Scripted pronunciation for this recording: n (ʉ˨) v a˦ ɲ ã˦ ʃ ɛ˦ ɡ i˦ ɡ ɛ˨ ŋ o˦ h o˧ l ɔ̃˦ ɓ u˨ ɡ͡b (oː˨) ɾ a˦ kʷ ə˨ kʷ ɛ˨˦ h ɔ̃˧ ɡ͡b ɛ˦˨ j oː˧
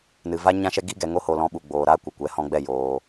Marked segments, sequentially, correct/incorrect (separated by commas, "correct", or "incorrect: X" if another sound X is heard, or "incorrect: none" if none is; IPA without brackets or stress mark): incorrect: ɨ˨, correct